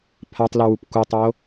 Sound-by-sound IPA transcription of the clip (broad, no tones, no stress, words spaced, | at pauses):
pʰatˤlu wupkutˤo